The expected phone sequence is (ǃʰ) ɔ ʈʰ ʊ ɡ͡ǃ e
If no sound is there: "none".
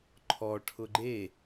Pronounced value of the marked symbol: ǃʰ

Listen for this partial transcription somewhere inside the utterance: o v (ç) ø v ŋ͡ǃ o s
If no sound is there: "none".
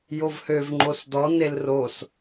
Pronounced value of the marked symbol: h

